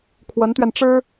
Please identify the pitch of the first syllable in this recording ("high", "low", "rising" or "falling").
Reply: rising